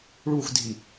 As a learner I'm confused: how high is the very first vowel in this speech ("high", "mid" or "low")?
high